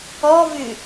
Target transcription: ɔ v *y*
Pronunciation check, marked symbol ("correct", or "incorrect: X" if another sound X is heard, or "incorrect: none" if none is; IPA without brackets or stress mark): correct